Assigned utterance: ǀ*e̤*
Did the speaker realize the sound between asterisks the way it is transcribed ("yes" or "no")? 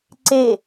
no